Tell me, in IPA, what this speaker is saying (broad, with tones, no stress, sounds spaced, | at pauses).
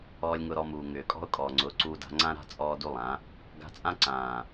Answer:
ɔː˧ lʲ ŋ ʊ˧ ɾ ɔ˧ m uː˨ ŋ ʏː˨ kʼ ɔ̤˦ ʊ̯ kʼ ɔː˨ ŋ͡ǀ ʊː˨˦ ǀ uː˧ d a̤˧ ŋ͡ǀ ã˦ ɾ a̤˦ t͡sʼ ɔː˦ d u˦ lˠ ã˨˦ | ɡ a̤˧ t͡sʼ ã˦ ǀ ãː˨